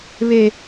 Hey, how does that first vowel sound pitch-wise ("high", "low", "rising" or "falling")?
high